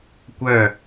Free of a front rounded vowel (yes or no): no